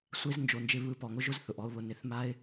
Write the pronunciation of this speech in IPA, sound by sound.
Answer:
sʷe˦z nd͡ʒo˨nd͡ʒɪ˧ βɯ˨˦pɔ˨ŋʊ˦ʒʊ˦z θʊ˨ʔɔ˦ʊ̯βʊ˧ nɪ˨˦θma˦ɪ̯

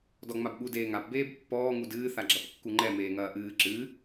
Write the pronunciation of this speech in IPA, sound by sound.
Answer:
dɔŋ͡mabɠu deːŋap beːbpːɔː ŋudɨː θaɡ͡ǁɐpkːuŋ͡ǃɛ meːŋɐːʔɨː ǁɨ

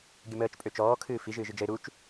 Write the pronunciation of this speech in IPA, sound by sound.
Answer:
ɡʲəməːt͡ʃpʼø t͡ʃɔːkʰɨː fi ʒɨːʒɨd͡ʒəɪ̯ ɾut͡ʃ

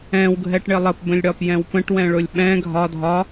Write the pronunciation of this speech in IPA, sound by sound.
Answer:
ɛ̃wɡʱɛʈɳɪ lˠəpbə̃lʲɽɒpjɛ̃w pə̃ʈwɛ̃ɭʊlʲ ɓɛ̃ ɡʱɒ dʱɒ

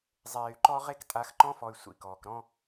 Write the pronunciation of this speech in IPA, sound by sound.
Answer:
zˤeː˨y̯ǃɔ˦ʁe˦k tʼa˨˦xǃɔ̃˦fɔ˨y̯ sʷḭ˨kɔː˨k ɾɔ̃˦

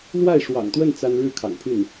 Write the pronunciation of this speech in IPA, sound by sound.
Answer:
lwa˥˩ɪ̯ʂwɑ̰˨˩ŋt̪wə˥˩n t͡sa˥n ɻɻ̩˥˩kʰɑ̰˨˩ŋ pʰy˥˩n

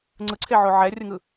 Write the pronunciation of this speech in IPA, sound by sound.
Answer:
ŋ͡ǀɯǀʰeʕo ʕɛrʲɯŋɯ

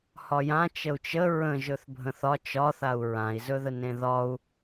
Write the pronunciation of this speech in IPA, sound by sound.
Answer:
hɒjã t͡ʃəu̯t͡ʃə ɹə̃ ʒɵθbʱə̃θɒ t͡ʃɒθau̯ ɹãi̯zɵðə nẽðɒu̯

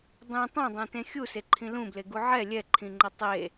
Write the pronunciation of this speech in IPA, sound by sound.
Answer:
dˤĩ tˤɛ̃dˤẽtẽ xʲuseǃʰĩ lũbleɡu ʕɛ lʲɛǃʰĩŋ͡ǃʌ tˤe

